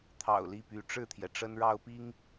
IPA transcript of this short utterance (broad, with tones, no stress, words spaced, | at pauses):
t̪ʰɑ̰˨˩ʊ̯ li˥˩py˧˥ ʈ͡ʂɻ̩˥˩t̪ʰjɛ˩ ʈ͡ʂə˥nɻɑ˥ʊ̯pi˥ŋ